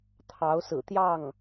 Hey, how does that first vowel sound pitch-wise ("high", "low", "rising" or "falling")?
rising